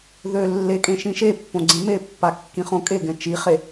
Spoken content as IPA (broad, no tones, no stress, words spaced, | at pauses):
ðø lːekʼẽ ʃĩʃepːõ ɡ͡ǀẽmepːa kːĩχõkʼeɡɛ̃ t͡ʃiχe